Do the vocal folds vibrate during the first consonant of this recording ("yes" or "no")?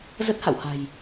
yes